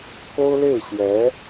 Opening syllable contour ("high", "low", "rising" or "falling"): high